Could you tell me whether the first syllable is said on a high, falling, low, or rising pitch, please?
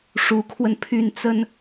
rising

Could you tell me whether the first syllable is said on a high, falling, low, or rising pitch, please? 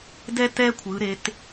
high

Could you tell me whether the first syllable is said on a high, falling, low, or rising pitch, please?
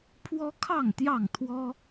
high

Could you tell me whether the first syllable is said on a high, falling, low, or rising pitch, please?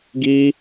high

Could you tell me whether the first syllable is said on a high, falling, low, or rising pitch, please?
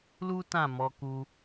high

